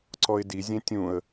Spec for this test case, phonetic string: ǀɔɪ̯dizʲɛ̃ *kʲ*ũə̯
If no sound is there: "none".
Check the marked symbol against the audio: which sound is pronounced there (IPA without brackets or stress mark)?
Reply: tʲ